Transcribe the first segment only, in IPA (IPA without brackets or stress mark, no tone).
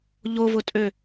ʎ